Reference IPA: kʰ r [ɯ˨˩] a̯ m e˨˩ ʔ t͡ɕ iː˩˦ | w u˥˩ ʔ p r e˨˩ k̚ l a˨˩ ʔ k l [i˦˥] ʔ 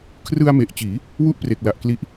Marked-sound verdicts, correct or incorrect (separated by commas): incorrect, correct